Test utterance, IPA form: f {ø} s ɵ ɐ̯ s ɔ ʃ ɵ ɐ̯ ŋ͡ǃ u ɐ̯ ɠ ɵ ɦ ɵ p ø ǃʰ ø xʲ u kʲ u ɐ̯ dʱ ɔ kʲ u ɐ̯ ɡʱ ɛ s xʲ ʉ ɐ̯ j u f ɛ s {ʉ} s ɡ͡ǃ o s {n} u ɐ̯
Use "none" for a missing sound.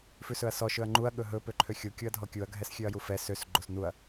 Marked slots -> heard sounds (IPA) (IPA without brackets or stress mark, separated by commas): ʉ, ø, n